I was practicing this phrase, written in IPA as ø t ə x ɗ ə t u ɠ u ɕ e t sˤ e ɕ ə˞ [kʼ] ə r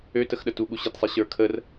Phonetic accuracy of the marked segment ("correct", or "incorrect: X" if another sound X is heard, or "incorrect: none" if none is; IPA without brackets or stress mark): incorrect: kʰ